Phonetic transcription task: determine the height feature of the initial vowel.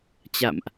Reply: low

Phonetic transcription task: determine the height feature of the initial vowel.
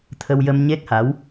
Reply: mid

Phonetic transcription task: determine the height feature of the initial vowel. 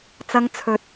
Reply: low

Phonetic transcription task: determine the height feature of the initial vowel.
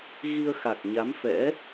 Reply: high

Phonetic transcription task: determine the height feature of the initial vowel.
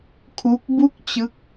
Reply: high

